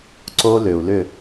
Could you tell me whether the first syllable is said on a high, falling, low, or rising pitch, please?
high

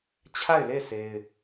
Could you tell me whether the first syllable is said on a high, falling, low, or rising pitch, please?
falling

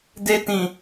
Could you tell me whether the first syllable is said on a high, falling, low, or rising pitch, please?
high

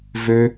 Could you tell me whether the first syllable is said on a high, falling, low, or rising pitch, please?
high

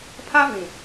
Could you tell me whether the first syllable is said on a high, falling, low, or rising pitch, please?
high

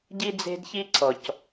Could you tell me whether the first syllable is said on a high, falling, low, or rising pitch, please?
high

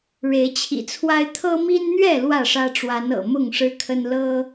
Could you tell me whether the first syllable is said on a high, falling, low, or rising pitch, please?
rising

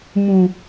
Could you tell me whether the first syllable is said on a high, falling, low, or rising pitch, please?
low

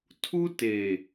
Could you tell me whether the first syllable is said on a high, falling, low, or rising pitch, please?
high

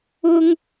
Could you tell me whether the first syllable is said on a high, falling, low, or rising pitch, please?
high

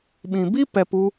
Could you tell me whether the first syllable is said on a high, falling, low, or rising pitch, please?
low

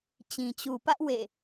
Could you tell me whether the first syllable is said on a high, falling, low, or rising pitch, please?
low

